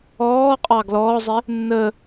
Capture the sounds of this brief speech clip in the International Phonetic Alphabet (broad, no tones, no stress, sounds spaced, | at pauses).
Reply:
ɔː qʼ ɑ ɡ l ɔː zˤ ɪ | nː ə